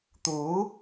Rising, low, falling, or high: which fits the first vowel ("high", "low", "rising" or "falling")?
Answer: rising